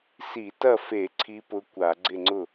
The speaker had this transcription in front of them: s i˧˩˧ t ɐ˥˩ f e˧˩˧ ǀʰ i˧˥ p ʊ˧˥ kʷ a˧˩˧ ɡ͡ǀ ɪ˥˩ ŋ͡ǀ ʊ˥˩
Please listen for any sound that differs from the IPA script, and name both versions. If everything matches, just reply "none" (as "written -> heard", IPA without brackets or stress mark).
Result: none